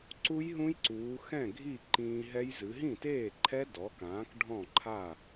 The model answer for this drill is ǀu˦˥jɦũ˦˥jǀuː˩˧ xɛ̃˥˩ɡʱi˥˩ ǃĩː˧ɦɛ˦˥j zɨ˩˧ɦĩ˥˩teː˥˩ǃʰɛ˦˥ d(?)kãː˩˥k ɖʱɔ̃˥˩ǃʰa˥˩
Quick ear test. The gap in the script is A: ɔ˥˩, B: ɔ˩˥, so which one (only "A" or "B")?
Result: B